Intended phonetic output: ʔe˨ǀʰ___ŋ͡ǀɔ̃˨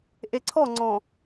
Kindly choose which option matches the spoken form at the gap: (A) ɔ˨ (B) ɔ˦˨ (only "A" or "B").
B